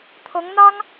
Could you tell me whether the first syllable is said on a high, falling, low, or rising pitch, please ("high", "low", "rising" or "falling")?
rising